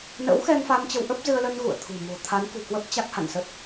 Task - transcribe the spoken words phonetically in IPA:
n ə̰˧˥ w x ɛ˧ ŋ f a˧ m t͡ɕ ə˧ w ʔ ə˦˥ p̚ z ɨ˧ ə̯ l ə˧ n ɣ ṵ˧˨ ə̯ t̪ʰ ṳ˨˩ m o̤˨˩ t̪ʰ a˨˦ n k ṳ˨˩ k w ə˦˥ p̚ t͡ɕ a˦˥ k̚ h a̰˧˨ n s ə˦˥ t̚

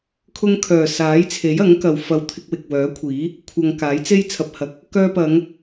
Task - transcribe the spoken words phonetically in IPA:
kʰ ʊ˧ ŋ kʰ œː˨˩ s aː˨˥ j t͡sʰ e˨˥ j ɐ˨˥ ŋ k ɐ˨ w f ɐ˨ w t̪ʰ ɪ˧ k̚ w ɪ˨ k̚ w œː˨˥ kʷʰ iː˨˥ | kʷʰ ɐ˨ ŋ k aː˨˥ j t͡s e˥ j t͡sʰ ɐ˨ p̚ h ɐ˨ k̚ | k œː˧ p ɐ˨˧ ŋ

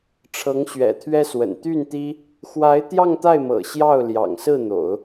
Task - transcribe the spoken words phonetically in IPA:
ʈ͡ʂʰ ɤ˧˥ ŋ ɕ ɥ ɛ̰˨˩ t̪ʰ ɥ ɛ˥ s w ə̰˨˩ n t̪ y˥˩ n t̪ i˥ | x w a˧˥ ɪ̯ t̪ j ɑ˥˧ ŋ t̪ a˥˩ ɪ̯ m ɤ̰˨˩ ɕ j ɑ˥˩ ʊ̯ l j ɑ̰˨˩ ŋ s ɹ̩˥˩ n̪ o̰˨˩˦ ʊ̯

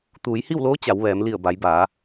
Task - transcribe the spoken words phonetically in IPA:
t̪ uː˩˧ j h i˥˨ w l oː˧˥ t͡ɕ a˩˧ w ʋ ɛː˩˧ m l i˧˩ ə̯ b a˩˧ j b aː˩˧

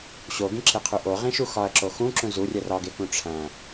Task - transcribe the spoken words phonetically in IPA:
ɕ o ɡ ĩ ǁ e qʰ u ʔ o ʁ ĩ ʃ u x ɒ ɐ̯ ǁ o x ũ ǁ ũ z u rʲ æ r ɒ ɡ e k ũ ʈ͡ʂʰ æ̃

